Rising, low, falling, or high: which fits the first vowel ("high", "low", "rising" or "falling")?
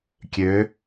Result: rising